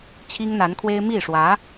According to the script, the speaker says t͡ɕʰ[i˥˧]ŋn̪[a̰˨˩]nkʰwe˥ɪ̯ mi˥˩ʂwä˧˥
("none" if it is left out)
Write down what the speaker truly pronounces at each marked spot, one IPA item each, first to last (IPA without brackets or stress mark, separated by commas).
i˥, a˧˥